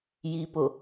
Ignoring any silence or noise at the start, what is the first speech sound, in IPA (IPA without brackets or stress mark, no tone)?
j